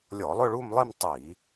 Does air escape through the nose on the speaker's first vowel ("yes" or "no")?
no